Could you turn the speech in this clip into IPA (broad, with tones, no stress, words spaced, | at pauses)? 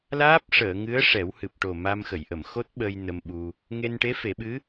laː˦˥p̚ ʂəː˨˩˨ŋɨ˧˥ə̯ ʂɛ˨˩˦whɨ˨˩p̚ʈo˨˩ ma˧m xə˨˩˨jʔə˨˩˨mxo˦˥t̚ɓəː˧j nə˧mɓu˧ | ŋe˧nʈe˧˥fe˨˩˦ɓɨ˧˥